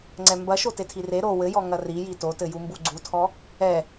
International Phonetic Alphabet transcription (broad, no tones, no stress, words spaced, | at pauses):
ŋ͡ǀɛmbɐʃo tetʰire ɾo wɘjɔ ŋɐriji totɘ jumbuɡ͡ǀutʰɔ | ɛ